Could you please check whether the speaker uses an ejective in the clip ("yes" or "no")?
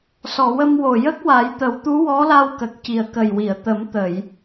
no